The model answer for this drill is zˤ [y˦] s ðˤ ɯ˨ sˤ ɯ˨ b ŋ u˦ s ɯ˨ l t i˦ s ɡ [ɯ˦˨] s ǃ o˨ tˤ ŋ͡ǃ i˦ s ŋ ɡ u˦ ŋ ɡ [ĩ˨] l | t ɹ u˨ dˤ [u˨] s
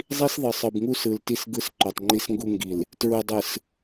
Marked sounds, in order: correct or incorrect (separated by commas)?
incorrect, incorrect, incorrect, incorrect